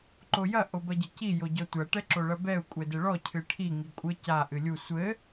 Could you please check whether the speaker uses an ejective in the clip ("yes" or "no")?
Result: yes